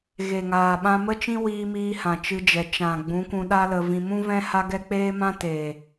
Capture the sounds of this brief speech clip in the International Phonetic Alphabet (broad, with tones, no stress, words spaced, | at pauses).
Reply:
ɣe˨ŋaː˨ ɓã˧mə˦t͡ʃĩ˦ wiː˧miː˧ hã˨t͡ʃɨ˧d͡ʒɛ˨ t͡ʃã˨ ɡ͡bũ˨˦kʷũ˧ ɗa˦lə˧vĩ˧ mũ˦vɛ̃˦ ha˦ɡɛ˦ k͡peː˦mã˦teː˨